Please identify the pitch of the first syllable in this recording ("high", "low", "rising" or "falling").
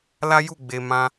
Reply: high